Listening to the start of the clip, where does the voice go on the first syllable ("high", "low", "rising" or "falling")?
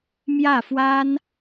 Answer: falling